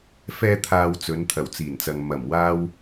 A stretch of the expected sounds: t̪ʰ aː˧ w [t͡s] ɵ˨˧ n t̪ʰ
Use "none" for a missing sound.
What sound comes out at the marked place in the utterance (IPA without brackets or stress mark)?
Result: t͡s